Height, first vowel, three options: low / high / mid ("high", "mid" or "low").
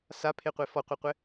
low